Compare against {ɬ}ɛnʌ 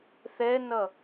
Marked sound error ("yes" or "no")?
yes